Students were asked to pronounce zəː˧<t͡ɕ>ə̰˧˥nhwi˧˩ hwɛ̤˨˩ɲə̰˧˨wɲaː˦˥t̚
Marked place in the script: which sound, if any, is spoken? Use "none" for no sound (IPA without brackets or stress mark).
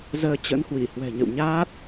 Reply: t͡ɕ